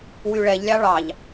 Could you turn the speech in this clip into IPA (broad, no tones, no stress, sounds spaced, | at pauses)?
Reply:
w y ɭ ɛ ʎ lʲ ɑ ɭ ɑ ʎ